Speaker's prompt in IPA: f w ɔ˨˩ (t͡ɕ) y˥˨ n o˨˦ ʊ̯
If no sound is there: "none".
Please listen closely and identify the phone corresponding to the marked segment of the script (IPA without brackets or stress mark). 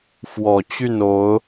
t͡ɕ